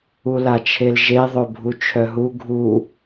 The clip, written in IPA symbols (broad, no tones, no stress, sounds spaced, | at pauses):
u l a t͡ʃʰ e l ʒ e ðˤ o bʱ u t͡ʃʰ œ ɦ u ɡʱ u